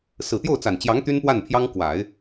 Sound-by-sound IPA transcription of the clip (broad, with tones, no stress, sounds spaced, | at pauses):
s ɹ̩˨˩ t̪ j o˥˩ ʊ̯ t͡s a˨˩ n t͡ɕ j ɑ˧˥ ŋ t̪ y˥ n p w a˥˩ n pʰ j ɑ˥ ŋ k w a˨˩˦ ɪ̯